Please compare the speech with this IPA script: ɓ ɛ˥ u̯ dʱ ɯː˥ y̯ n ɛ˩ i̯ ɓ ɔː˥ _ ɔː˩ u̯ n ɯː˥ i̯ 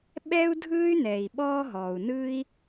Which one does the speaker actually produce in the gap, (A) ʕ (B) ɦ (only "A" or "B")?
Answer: B